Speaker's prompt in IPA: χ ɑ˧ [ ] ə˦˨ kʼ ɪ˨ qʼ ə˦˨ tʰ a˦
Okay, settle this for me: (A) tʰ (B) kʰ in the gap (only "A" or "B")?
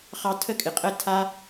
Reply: A